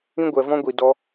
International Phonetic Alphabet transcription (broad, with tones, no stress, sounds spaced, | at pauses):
ĩ˦ ɡʷ ɛ˧ v ɔ̃˦ ɡʷ i˧ d ɔ˧